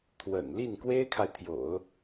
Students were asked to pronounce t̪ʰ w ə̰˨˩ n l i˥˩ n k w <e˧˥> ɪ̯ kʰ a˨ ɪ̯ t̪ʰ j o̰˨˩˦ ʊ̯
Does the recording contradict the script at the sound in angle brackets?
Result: yes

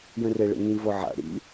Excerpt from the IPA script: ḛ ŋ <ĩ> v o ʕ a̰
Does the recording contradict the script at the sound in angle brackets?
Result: no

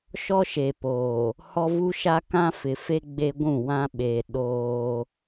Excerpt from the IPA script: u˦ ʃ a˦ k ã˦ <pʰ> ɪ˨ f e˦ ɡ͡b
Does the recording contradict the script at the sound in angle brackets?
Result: yes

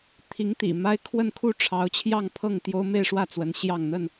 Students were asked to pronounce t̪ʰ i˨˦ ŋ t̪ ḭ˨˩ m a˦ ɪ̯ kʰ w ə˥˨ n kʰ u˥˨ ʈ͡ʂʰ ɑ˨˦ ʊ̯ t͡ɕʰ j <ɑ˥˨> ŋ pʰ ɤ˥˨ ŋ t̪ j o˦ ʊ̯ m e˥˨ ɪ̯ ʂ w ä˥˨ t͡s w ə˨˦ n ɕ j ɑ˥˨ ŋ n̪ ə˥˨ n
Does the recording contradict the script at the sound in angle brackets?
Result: no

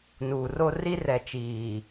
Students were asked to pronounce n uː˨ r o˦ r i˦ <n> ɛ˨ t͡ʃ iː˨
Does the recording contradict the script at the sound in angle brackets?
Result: yes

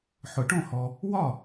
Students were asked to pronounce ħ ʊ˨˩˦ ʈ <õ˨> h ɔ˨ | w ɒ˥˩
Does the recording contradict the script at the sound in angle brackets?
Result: yes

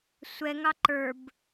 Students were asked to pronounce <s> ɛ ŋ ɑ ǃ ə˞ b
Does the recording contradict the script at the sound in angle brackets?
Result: yes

